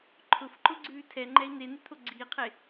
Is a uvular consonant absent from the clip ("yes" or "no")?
no